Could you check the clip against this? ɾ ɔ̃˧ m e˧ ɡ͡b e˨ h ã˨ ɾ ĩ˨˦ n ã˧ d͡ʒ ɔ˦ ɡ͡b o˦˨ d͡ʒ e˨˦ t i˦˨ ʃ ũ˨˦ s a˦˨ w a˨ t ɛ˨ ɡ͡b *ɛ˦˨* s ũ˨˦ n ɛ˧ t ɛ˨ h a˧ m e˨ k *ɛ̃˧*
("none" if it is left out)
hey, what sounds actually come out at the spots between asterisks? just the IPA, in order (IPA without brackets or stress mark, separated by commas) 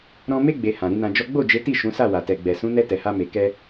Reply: ɛ˨, ɛ˧